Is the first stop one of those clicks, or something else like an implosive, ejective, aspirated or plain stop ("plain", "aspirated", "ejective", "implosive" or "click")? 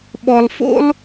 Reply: implosive